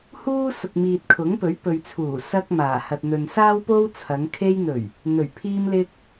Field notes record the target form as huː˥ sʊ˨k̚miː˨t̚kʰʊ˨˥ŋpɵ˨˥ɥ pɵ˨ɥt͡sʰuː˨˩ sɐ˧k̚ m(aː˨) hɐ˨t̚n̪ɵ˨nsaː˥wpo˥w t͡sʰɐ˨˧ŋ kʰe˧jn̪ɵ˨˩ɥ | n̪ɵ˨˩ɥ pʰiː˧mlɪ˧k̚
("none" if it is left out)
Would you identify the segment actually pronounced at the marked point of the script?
aː˨˩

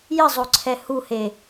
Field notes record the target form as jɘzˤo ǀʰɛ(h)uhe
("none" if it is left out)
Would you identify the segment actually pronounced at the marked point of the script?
h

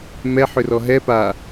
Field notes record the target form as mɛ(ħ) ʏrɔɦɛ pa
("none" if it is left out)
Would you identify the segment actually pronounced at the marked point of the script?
ħ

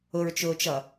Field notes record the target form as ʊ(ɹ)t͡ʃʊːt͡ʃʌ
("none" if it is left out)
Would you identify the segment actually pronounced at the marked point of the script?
ɹ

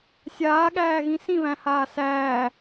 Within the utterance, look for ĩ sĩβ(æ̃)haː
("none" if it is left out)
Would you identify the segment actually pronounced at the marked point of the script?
æ̃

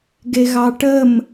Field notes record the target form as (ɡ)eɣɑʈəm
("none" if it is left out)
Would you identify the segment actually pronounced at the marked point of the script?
ɡ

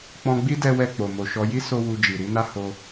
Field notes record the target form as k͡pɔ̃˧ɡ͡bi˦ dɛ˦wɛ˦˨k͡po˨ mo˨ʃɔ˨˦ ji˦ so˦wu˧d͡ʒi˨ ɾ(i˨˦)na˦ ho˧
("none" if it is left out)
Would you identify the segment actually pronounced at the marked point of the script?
i˨˦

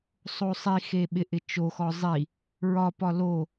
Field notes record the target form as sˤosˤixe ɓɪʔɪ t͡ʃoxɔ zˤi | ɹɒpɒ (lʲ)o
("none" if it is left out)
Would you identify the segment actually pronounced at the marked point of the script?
l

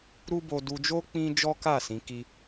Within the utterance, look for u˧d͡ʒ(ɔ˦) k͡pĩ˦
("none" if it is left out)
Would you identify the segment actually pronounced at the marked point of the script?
o˦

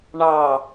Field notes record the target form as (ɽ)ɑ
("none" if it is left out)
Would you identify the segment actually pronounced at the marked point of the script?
ɳ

